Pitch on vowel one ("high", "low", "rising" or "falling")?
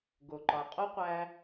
low